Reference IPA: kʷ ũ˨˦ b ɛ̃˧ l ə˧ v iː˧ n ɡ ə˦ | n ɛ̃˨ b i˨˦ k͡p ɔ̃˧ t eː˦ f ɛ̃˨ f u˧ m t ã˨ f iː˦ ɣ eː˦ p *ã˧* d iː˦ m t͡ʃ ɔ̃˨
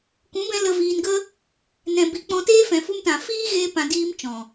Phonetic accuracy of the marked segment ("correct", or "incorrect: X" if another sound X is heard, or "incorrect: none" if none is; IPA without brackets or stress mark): correct